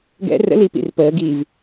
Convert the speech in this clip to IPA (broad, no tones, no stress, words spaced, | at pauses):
ɡɛ̰ rə̰liːp ḭrpəːɡiːv